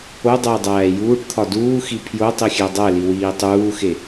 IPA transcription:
o dˤ e j dˤ æː j uː ʈ t̪ʰ ɒ d uː x i pʰ j o tˤ i xʲ æ dˤ æ l i w iː tˤ uː x e

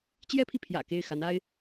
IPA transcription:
t͡ɕ j ɛ˥ pʰ i˨ pʰ j ä̰˨˩ k e˥˩ ɪ̯ x a˧˥ n a˥ ɪ̯

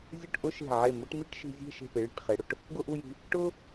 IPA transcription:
zʲ ʊ˥˧ ʈ ʔ ʊ˥ ʃ e̤˧˩ ʕ e˧˩ m ʊ˥ ʈ m i˥ ʈ ʃ i̤˧ zʲ e̤˥˧ ʃ e̤˧˩ p e˩˧ ɭ i̤˧˩ ʈ χ e˩˧ ɽ ʊ˥˧ ʈ | ɡ ʊ˥˧ ʔ u˥˧ j i̤˧ | ʈ ʊ˥

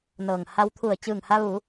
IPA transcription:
n ɤː˩ ŋ h a˧ w t̪ʰ u˧˩ ə̯ t͡ɕ ɯː˧˩ ŋ h a˧ ʋ u˩˧

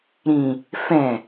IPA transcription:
ɾ ĩ | f ɛ̃

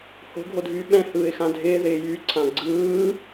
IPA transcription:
h o̤ ɡʱ o dʱ yː ɓ ɛ̃ h ɯː ɪ̯ x ã dʱ ɪː ð ɪː j y ǀʰ ã ɡ͡ǀ ɯː

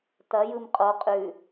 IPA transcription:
t ɐ j ɯ m qʼ o qʼ ʉ

